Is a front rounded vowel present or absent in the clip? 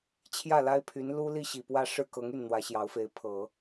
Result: present